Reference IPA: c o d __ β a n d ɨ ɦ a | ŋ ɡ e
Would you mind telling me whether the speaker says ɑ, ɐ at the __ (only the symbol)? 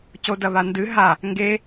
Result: ɐ